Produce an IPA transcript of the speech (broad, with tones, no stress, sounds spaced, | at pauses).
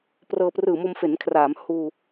p r ɤː˧ p r ɯː˨˩ m o˧ m f e˩˦ n kʰ r aː˩˦ m h uː˧